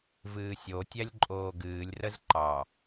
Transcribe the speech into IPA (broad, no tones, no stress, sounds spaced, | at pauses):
v ɨː sʲ o tʲ æ lʲ ǃʼ oː ɡ ɨː lʲ r ə z ǃ ɑ